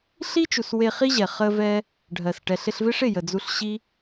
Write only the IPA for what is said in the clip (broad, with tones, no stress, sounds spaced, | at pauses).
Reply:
ɬ i˦ t͡ʃ u˨ s w e˧ χ i˦ ʑ ɛ˨ χ ə˦ v ɛ˦ | ɖʱ ɜ˨ s ʈ ɛ˨ ɬ ɪ˧ ɬ v ɪ˦ ʂ ɪ˦˨ j ə˨ d͡z u˧ ɬ ɕ i˦